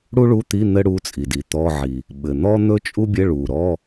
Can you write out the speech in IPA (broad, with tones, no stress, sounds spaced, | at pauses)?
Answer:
ɽ u˥ ɭ u˧˥˧ t̪ i˧˥˧ n̪ ɘ˥ ɽ u˧˥˧ t͡sʼ i˨˩ d i˨˩ t̪ ɔ˧˥˧ ʕ i˨˩ | ɓ ɘ˨˩ n̪ ɔ˥ n̪ ɵ˥ t͡ʃʼ u˥ bʲ ɘ˧˥˧ ɭ u˨˩ ɾ ɔ˧˥˧